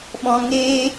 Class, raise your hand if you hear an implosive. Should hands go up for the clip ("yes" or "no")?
yes